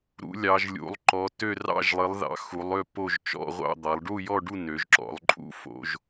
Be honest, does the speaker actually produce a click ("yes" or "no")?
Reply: yes